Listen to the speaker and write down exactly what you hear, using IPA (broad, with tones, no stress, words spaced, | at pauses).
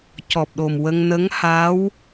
cɔ˨˩p̚ɗo˨˩mwə˧ŋ nə˧˥ŋha˧˥w